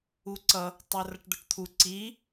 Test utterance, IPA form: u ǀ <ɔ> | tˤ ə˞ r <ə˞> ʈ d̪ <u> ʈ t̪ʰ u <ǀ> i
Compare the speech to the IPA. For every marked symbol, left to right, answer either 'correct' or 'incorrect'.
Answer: incorrect: ʌ, incorrect: ʌ, incorrect: ʊ, correct

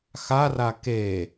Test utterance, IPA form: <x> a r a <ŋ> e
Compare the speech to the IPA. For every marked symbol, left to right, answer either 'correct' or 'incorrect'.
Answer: correct, incorrect: k

